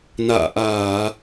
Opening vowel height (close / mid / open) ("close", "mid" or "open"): open